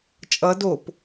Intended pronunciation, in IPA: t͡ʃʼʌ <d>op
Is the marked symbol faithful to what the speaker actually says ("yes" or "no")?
yes